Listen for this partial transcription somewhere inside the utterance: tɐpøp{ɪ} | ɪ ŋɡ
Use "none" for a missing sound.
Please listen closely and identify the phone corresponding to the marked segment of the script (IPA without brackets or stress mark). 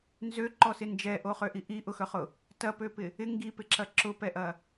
ɪ